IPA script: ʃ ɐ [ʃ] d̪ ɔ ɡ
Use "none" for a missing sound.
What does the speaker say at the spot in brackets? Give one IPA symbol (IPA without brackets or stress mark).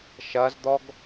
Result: z